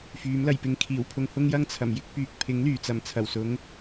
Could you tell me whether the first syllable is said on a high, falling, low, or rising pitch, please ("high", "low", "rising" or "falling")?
rising